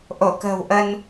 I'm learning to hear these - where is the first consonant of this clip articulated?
throat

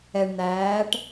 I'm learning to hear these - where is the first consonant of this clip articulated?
retroflex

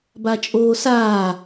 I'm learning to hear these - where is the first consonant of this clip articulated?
lips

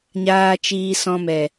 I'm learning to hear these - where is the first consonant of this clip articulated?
palate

